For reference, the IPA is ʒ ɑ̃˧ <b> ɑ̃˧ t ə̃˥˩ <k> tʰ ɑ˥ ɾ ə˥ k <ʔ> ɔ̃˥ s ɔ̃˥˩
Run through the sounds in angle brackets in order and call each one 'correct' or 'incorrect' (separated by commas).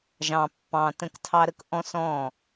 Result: incorrect, correct, correct